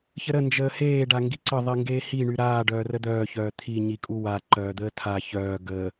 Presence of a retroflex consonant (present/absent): present